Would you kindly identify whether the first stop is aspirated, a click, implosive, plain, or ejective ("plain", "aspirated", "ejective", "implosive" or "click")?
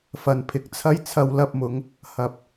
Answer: aspirated